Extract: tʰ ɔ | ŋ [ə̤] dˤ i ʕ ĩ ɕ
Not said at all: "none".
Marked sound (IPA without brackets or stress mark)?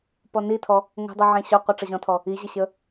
ə̤